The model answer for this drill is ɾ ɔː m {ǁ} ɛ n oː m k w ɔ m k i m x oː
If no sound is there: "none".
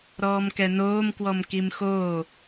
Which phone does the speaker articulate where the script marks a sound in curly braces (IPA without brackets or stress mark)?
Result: k